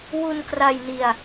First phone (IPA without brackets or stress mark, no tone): w